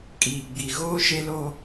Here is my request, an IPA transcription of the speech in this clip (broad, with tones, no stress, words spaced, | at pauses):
kʼiː˨ɡ͡bi˨ ɣoː˦ʃe˦ loː˦